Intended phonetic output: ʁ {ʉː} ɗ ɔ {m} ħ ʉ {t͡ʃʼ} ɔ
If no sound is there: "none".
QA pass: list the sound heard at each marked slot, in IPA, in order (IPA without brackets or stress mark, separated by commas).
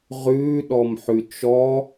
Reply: ʉː, m, t͡ʃ